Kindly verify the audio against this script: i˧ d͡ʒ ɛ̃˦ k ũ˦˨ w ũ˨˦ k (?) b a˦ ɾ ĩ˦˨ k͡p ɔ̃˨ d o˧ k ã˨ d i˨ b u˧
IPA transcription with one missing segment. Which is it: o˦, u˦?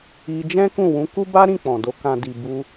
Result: u˦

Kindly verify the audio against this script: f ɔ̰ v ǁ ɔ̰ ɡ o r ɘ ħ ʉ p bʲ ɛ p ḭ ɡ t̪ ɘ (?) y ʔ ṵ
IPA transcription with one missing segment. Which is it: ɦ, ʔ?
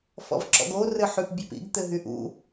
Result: ɦ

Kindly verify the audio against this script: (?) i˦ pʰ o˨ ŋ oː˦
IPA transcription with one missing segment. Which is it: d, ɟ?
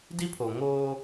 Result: d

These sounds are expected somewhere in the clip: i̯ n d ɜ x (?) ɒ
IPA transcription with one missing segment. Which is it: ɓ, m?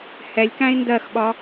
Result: ɓ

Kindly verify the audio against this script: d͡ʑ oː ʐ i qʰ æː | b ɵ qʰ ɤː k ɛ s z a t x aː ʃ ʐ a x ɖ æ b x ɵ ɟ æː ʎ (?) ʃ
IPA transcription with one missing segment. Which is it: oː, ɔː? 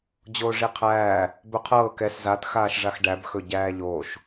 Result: oː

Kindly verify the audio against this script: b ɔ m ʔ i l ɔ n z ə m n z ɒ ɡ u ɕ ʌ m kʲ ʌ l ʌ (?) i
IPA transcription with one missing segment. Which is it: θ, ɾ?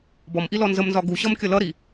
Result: ɾ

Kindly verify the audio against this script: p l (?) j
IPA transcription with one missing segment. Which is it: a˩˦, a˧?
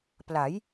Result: a˩˦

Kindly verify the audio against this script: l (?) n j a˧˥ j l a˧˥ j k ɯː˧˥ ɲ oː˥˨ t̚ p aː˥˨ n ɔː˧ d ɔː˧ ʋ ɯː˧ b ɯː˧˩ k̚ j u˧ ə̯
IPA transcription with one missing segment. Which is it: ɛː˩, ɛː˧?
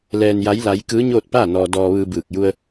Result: ɛː˧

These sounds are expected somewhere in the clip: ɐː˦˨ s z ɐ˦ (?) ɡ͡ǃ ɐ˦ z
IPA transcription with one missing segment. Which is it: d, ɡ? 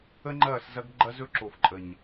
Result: ɡ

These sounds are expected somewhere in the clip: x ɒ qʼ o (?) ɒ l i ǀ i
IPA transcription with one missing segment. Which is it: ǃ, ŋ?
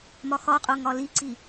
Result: ŋ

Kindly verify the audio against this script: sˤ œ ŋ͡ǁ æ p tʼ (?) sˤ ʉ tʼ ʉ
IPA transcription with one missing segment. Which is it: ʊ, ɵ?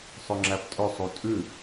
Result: ɵ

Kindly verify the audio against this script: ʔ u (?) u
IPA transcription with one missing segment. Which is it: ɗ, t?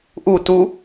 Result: t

